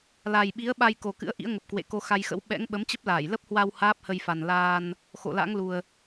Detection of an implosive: present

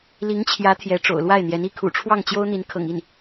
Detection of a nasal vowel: absent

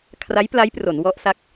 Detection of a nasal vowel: absent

